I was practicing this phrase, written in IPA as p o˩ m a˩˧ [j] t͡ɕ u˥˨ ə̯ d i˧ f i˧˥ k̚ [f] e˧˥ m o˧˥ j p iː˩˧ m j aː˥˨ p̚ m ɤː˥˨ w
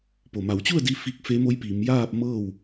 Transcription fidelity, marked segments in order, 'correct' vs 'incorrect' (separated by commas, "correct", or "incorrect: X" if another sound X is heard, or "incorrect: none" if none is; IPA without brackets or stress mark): incorrect: w, correct